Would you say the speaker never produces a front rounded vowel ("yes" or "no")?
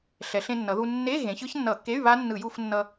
no